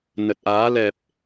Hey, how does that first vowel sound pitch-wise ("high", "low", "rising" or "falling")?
low